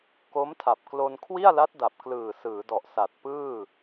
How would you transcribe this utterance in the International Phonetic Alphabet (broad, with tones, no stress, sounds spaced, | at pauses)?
k o˦˥ m tʰ a˨˩ p̚ k l o˧ n kʰ w i˥˩ a̯ l a˦˥ t̚ d a˨˩ p̚ k l ɯː˨˩ s ɯː˩˦ d ɔ˨˩ ʔ s a˨˩ t̚ p ɯː˥˩